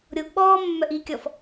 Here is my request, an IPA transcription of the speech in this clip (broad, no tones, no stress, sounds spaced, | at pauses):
ɾʲ o ɡ ɓ ɔː mː œ ʔ i kʲ ɔ f